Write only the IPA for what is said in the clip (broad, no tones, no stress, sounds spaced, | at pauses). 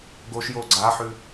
ɡ o ʃ j o ɡ͡ǀ a ħ ʉ